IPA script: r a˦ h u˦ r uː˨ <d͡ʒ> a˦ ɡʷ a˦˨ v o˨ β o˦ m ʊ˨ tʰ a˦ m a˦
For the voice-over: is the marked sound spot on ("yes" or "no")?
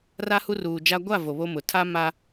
yes